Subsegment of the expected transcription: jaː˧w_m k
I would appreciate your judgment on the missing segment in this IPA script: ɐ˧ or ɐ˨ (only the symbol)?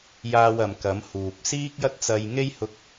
ɐ˨